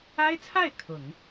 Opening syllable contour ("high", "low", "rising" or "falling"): high